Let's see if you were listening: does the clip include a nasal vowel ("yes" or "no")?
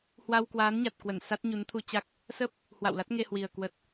no